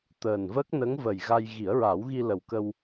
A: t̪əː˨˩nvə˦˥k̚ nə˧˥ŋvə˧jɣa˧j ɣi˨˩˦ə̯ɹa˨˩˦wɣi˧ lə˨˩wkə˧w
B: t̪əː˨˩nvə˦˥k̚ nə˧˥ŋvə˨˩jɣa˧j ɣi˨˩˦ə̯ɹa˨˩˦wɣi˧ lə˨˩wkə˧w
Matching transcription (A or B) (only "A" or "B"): B